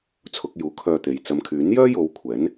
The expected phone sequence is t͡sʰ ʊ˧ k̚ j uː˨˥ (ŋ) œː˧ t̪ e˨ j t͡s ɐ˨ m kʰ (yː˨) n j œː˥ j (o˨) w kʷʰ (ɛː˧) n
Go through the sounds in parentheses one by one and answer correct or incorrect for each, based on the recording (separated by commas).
incorrect, incorrect, incorrect, incorrect